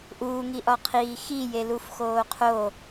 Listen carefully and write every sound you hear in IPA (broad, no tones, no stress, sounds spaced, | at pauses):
ʔ uː ŋ i ʔ ɒ qʰ iː x i j e l u f x oː qʰ o